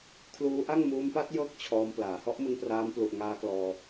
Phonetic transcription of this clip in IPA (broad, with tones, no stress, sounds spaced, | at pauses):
kʰ l uː˦˥ ʔ a˥˩ ŋ m uː˧ m p a˦˥ t̚ j ɤː˥˩ k̚ t͡ɕʰ ɔː˧ m p l aː˩˦ h ɔ˦˥ ʔ m ɯ˧ ŋ p r aː˧ m p l u˨˩ ʔ ŋ aː˦˥ k l ɔː˧